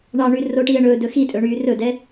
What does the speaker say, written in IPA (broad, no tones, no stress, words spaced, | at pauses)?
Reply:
ɳɑɳy roʈiə̯ ɳɵːdɵ xitʼɵɳyː rɵdɛ